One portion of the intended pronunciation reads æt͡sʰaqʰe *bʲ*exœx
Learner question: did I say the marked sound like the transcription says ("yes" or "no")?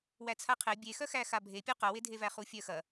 yes